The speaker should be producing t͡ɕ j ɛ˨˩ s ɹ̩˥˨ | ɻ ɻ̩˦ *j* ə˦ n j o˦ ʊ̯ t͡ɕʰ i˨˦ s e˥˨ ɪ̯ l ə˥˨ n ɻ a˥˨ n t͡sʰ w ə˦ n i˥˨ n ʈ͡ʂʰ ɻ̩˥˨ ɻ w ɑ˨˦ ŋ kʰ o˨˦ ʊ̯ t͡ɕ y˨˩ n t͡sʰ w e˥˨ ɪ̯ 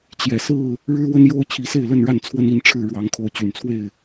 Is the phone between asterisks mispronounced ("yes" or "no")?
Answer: yes